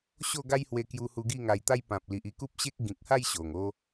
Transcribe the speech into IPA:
ɕo˥˧ ɡa˦jhwe˧kju˧hu˧ ɡi˥˧ŋa˧jt̪a˦jpã˨p̚ li˨ʔi˥˧ ku˦p̚ɕe˦k̚ ɡĩ˨k̚ha˥˧j ɕo˨˩ŋ o˧

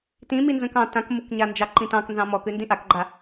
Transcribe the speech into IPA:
tĩ minzə̃kɑ̃ tãkmukɲand͡ʒɑ ǃĩtɑ̃knzɑ̃ mɔkʉndĩ ʔakɡ͡ǃa

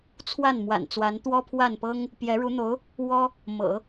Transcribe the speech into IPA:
t͡sʰwa˥˩n mwa̰˨˩nt͡swa˧˥n t̪wɔ˥pʰwa˥˩npɤ˥ŋ | pjɛ˧˥ɻu˧˥n̪o˧˥ʊ̯ | wɔ˥ | mɤ̰˨˩˦

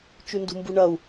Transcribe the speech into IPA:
t͡ʃʉndṳmbuɳɐu̯

